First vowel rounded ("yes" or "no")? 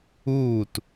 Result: yes